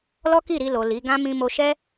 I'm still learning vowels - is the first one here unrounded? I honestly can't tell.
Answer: no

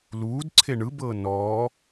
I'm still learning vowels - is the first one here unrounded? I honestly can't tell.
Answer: no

